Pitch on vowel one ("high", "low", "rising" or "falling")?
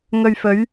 low